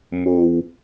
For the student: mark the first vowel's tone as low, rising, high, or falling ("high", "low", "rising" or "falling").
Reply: low